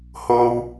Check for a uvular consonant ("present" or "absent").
absent